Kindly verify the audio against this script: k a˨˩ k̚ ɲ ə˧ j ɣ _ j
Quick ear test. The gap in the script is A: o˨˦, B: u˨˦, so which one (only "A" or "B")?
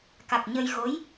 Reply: A